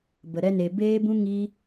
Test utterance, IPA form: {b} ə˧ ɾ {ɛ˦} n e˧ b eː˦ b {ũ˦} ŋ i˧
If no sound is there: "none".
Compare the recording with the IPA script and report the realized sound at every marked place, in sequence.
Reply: b, ɛ˦, ũ˦

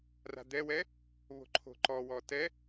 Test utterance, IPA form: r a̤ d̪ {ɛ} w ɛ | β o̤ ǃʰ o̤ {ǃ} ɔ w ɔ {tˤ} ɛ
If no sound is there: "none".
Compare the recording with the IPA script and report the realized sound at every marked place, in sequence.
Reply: ɛ, ǃ, t

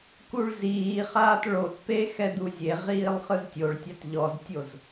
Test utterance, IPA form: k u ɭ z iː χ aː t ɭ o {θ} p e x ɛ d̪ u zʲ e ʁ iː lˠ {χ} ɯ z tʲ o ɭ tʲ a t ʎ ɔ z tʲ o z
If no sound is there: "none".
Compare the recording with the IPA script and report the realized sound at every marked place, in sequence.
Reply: t, χ

